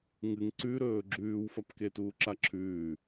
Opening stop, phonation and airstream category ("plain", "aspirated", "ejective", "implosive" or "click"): click